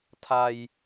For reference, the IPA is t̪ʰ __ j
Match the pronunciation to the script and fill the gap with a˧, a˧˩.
a˧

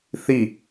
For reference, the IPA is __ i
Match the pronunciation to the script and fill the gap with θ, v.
θ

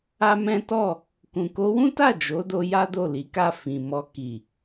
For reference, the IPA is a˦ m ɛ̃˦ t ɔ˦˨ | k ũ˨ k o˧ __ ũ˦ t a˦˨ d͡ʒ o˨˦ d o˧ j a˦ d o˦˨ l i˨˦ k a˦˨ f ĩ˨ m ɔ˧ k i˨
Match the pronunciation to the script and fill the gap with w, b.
w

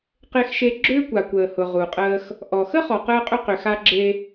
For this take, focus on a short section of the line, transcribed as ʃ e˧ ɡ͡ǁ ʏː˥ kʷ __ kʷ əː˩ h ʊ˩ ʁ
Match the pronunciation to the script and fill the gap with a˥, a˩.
a˩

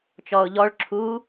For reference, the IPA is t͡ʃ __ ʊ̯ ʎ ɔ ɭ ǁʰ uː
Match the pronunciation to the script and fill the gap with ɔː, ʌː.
ɔː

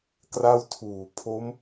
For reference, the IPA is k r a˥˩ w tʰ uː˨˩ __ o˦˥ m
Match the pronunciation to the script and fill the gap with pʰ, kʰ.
pʰ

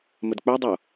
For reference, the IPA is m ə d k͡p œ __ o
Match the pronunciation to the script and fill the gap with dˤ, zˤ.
dˤ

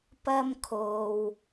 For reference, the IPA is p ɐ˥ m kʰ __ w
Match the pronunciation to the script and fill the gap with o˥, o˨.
o˨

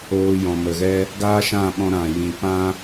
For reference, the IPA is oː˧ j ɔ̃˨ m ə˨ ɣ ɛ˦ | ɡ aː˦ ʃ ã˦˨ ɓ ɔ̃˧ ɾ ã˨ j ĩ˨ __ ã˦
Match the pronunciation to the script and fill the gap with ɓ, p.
p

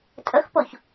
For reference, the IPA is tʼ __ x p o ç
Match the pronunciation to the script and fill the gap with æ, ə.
ə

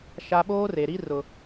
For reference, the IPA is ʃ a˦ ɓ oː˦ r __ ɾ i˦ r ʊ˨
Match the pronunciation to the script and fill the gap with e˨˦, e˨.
e˨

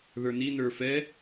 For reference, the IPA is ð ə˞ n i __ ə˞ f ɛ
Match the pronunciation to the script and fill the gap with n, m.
n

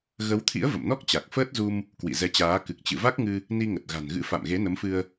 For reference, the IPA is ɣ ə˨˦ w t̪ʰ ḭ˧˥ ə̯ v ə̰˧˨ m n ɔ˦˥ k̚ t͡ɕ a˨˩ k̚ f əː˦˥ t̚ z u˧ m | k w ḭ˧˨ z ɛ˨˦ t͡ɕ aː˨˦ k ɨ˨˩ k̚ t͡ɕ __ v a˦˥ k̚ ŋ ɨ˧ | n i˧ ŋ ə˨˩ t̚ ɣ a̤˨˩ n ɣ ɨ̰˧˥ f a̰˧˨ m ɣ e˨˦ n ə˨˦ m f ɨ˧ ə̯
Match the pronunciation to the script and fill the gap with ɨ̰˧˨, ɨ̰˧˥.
ɨ̰˧˨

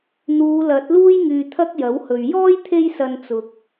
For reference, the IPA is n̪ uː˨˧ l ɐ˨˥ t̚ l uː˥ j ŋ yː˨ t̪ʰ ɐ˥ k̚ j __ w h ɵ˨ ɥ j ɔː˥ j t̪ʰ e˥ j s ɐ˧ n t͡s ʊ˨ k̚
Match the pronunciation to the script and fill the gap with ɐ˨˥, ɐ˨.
ɐ˨˥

